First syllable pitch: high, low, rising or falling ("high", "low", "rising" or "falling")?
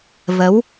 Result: rising